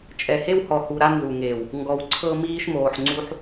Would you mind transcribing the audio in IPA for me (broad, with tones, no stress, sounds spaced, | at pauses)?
t͡ʃʼ ɛ˨ h e˦ w h ɔ˨ h u˨ ɾ a˦ n z u˨ ŋ eː˨ w | ŋ ɡ ɔ˨ w ǀʰ ɤ˦ m iː˦ ʃ m oː˨ ħ ŋ͡ǀ u˦ ħ